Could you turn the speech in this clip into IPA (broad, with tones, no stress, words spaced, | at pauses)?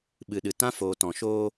ɓɨ˨ɗɨ˨ tã˦foː˨tɔ̃˨ʃoː˦